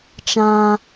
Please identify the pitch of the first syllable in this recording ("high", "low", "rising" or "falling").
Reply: high